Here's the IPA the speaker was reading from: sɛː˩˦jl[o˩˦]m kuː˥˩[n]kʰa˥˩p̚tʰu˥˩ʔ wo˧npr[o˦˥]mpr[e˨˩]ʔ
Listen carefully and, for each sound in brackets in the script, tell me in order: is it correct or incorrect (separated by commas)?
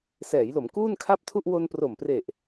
correct, correct, incorrect, correct